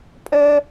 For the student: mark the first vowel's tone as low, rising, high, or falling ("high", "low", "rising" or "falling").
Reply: high